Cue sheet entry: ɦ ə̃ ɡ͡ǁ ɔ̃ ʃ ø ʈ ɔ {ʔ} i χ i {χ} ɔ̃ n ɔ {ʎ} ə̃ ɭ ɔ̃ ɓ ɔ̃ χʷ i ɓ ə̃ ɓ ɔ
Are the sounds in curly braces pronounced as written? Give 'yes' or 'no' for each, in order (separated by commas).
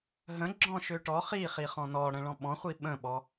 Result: no, yes, no